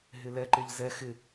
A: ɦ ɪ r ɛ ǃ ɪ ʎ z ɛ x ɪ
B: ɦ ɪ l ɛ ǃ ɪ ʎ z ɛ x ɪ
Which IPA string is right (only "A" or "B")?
B